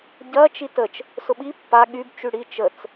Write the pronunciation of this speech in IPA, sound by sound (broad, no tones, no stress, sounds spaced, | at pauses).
ɟ ɐ t͡ʃ i t ə t͡ʃ | s ʊ ɓ i pː a ɠ y b t͡ʃ y ɽ i t͡ʃ ə t͡s